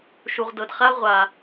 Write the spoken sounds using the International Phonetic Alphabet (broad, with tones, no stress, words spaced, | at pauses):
ʃu˩ʁdɤ˩dχa˥ ʁʷa˩